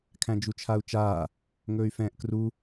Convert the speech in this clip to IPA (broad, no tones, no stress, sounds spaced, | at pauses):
kʰ æ̃ d͡ʒ u t͡ʃʰ a u̯ t͡ʃ aː | ŋ ɵː y̯ f ɛ̃ː ʔ k r u